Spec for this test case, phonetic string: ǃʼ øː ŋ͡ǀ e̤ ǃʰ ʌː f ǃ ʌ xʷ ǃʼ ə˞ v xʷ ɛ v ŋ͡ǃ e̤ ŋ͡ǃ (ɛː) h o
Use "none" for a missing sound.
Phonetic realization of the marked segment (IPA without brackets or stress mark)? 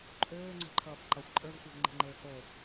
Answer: eː